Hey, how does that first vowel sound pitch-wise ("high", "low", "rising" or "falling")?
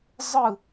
falling